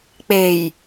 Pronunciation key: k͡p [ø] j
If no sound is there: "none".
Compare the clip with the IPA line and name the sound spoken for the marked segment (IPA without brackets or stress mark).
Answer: e